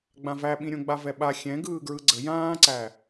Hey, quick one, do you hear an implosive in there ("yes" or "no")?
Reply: yes